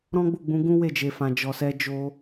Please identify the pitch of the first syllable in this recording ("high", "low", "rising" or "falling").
high